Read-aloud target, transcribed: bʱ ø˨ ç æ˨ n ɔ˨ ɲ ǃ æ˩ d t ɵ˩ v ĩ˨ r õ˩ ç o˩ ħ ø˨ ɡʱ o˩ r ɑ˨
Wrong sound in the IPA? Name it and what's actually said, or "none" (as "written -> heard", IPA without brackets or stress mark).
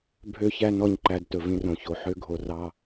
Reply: none